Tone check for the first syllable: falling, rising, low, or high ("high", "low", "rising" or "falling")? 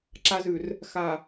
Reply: low